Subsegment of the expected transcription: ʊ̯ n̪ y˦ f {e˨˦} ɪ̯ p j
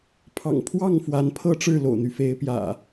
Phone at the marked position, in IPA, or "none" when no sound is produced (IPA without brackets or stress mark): e˨˦